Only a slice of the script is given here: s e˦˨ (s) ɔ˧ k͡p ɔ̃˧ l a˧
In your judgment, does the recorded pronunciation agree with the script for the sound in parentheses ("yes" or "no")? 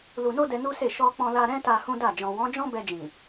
no